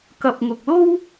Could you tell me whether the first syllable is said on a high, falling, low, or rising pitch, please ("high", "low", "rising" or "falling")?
low